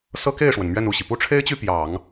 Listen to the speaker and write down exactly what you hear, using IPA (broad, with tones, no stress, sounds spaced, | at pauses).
s ɤ˥ k e˥˩ ɪ̯ ʂ w ə˩ n m ɥ ɛ˥˧ n u˥˩ ɕ i˩ p u˥ ʈ͡ʂʰ e˥ ɪ̯ t͡ɕ y˥˩ p j ɑ˨˩˦ ŋ